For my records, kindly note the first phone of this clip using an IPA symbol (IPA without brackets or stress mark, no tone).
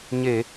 ɲ